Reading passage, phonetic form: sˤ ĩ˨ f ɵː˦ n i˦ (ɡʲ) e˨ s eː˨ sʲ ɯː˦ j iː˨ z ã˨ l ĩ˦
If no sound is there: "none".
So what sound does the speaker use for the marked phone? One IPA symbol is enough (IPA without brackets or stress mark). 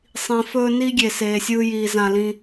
ɡʲ